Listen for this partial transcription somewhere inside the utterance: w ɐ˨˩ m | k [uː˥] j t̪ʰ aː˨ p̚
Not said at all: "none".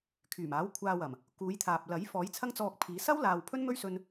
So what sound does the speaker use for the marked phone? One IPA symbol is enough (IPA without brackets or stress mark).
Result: uː˨˧